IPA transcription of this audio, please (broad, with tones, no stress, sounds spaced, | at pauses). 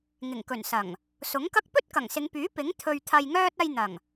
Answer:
ŋ ɪ˨˩ ŋ k ɵ˨˩ n s ɐ˨˩ ŋ | s ʊ˨˥ ŋ k ɐ˥ k̚ p ɵ˥ t̚ k ɐ˨˩ ŋ s ɪ˨˧ ŋ p yː˨˥ p ɪ˨˥ ŋ t̪ʰ ɵ˧ ɥ t̪ʰ ɐ˧ j ŋ œː˥ t̚ ɐ˧ j n̪ ɐ˨˩ ŋ